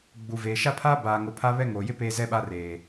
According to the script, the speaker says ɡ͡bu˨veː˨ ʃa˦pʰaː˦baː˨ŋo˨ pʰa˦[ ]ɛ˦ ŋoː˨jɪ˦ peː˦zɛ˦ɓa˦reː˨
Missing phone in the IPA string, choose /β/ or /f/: β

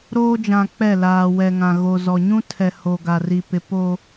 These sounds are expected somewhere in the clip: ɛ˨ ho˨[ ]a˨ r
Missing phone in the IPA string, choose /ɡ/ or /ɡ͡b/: ɡ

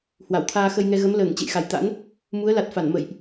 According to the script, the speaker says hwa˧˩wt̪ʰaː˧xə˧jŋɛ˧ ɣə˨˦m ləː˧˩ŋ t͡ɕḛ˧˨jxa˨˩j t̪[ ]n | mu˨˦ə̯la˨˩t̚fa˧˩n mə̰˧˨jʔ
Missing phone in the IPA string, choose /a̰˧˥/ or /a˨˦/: a̰˧˥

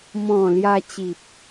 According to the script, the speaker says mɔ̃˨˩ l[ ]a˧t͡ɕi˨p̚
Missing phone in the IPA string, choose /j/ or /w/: j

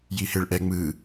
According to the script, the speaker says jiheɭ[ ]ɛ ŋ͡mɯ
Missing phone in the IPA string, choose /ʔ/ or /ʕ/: ʔ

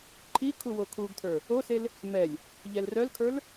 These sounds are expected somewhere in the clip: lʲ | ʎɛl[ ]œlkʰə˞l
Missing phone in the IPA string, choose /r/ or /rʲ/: r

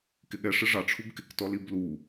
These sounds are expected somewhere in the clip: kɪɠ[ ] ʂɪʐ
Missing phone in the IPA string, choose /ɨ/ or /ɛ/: ɛ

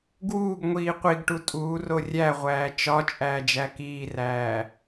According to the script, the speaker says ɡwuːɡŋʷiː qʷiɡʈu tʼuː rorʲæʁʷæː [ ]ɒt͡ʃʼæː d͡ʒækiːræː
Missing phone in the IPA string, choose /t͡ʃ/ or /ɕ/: t͡ʃ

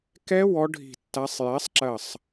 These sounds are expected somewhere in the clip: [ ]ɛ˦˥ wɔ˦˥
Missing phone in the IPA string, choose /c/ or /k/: k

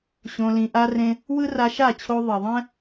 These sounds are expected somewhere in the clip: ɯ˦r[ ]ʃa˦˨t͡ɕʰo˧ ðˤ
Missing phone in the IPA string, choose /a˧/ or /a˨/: a˧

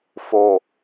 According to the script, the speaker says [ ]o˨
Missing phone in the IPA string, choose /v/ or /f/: f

